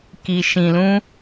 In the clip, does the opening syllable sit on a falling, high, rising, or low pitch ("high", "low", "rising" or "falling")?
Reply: low